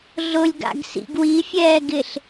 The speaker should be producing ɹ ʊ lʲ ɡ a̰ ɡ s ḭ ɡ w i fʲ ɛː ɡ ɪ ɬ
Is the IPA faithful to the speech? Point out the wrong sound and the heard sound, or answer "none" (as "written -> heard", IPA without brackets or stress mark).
ɹ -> ɮ